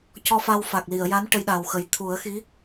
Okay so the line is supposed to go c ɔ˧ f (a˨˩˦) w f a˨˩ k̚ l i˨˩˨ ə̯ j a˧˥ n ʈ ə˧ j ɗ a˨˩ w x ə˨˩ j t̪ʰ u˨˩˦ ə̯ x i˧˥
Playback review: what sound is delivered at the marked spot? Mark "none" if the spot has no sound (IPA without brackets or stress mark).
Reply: a˧